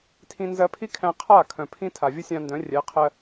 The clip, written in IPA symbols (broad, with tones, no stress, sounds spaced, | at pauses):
tʰ ĩ˧ n z ɜ˧ pʰ i˦ kʰ æ̃˧ qʰ a˦˨ kʰ œ̃˨ pʰ ĩ˧ tʰ a˨ vʲ ə˦ sʲ ã˧ n d œ̃˨˦ rʲ ɛ˨˦ qʰ ɜ˧